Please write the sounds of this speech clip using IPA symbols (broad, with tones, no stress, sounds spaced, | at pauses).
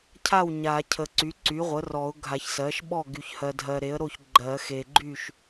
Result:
cʰ a˥˩ w ɲ a˨˩˦ cʰ ə˨ ǀ y˩˥ ǀ y˩˥ ʁʷ ə˩˥ r ɔ˨˩˦ ʊ̯ ɡʱ a˨˩˦ ç s ɜ˩˥ ʃ ɓ ɔ˥˩ ɡ y˨ ç h ɜ˨ dʱ ɜ˨ ɾ e˩˥ ə̯ ɾ o˥˩ ç ɡ͡ǃ ɜ˨˩˦ x e˨ ɡ͡ǃ y˥˩ ʃ